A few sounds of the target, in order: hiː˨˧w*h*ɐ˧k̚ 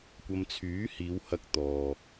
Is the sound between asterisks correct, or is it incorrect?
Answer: correct